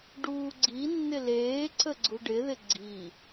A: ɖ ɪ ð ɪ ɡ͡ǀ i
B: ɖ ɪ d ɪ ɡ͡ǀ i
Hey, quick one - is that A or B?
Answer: A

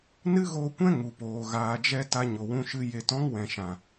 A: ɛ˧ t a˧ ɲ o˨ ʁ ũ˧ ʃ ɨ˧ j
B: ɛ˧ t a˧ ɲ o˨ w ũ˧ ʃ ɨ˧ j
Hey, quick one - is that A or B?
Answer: B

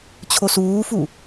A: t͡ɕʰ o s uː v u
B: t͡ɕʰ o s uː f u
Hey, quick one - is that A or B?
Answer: B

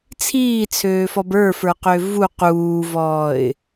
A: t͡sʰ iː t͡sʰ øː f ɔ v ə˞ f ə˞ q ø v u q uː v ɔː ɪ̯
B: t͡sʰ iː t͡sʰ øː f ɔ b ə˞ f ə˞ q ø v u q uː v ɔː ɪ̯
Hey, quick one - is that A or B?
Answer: B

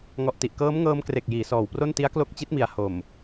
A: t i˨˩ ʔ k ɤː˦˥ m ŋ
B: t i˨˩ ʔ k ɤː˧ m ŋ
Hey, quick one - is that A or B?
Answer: A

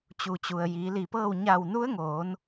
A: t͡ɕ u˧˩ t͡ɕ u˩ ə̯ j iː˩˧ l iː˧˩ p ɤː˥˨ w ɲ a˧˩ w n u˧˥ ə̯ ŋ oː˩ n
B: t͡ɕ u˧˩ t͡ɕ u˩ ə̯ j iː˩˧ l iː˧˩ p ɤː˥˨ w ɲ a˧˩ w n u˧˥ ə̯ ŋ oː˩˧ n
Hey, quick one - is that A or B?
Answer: B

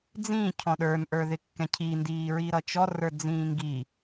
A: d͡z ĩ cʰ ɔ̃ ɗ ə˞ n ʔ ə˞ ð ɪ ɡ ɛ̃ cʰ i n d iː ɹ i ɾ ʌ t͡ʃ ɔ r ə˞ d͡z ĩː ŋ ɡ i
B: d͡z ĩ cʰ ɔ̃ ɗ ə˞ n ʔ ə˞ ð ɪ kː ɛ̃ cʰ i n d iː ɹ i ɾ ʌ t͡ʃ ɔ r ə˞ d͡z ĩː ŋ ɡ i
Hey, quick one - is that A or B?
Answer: B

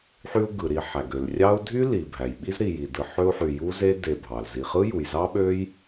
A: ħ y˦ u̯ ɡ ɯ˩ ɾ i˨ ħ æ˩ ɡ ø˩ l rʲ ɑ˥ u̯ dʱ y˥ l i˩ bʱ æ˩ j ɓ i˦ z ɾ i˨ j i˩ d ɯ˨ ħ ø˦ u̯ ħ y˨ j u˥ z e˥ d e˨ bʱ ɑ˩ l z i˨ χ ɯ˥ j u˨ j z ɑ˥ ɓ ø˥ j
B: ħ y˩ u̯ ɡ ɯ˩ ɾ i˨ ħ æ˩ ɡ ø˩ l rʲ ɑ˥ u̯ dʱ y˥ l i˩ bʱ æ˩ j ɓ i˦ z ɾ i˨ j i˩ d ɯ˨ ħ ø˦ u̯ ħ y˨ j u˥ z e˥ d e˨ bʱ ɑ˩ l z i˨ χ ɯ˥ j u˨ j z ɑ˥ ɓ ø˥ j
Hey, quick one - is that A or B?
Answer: A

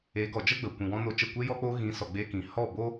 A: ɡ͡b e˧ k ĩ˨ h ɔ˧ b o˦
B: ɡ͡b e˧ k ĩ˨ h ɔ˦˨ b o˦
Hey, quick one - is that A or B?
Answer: B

